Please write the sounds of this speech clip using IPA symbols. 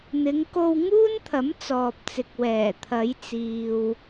n̪ ɪ˨˧ ŋ k o˧ w ŋ uː˥ n t̪ʰ ɐ˨˥ m t͡s ɔː˨ p̚ t͡s ɪ˨ k̚ w ɛː˨˩ t̪ʰ ɐ˨˧ j t͡s iː˨ w

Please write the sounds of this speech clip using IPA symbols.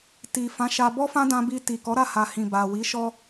t i˨ f ã˨˦ ʃ a˧ b ɔ˦ f ã˦ d ã˧ b i˧ t i˨ k ɔ˨˦ ɾ a˦˨ h a˨ h ĩ˨ b a˨ w i˨˦ ʃ ɔ˦

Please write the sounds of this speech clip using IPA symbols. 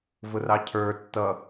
v ʊ r ɑ cʰ ə˞ tː ʌ

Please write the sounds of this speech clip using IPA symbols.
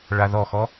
ɭ a ð ɔ x ɔ

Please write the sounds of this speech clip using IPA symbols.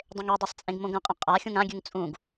dˤ ẽ ŋ e dˤ e sˤ t͡sʼ ẽ ɡ m õ ɡ ɐ̃ qʼ ɐ̃ qʼ a xʲ ũ ŋ ã ɡʲ ʉ ŋ t͡sʼ ũ ɡ

